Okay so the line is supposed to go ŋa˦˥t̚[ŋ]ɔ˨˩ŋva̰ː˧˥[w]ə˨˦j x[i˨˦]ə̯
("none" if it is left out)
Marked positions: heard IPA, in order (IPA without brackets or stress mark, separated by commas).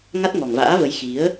ŋ, v, i˨˦